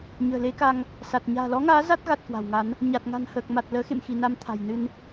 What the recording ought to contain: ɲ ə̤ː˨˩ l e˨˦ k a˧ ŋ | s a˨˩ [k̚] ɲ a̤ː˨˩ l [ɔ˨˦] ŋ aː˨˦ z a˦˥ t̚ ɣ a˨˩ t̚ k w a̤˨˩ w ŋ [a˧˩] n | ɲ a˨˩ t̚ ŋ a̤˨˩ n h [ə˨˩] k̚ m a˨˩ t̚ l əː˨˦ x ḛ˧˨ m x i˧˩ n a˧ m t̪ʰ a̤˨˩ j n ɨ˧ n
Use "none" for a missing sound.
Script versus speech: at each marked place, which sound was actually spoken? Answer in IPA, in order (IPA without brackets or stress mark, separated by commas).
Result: t̚, ɔ˨˦, a˨˦, əː˨˩